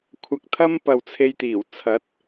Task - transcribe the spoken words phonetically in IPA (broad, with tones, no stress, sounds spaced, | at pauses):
kʷʰ ɐ˧ k̚ t̪ʰ ɐ˥ m p ɐ˨ w t͡sʰ e˧ j t̪ iː˨˩ w t͡sʰ ɐ˨˥ t̚